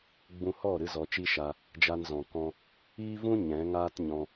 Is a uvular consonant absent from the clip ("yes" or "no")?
yes